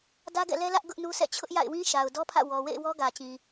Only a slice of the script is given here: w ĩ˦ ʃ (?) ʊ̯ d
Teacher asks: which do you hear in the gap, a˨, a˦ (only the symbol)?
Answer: a˨